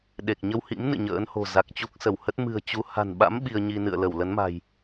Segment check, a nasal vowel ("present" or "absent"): absent